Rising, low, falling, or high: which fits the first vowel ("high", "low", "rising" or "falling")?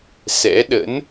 rising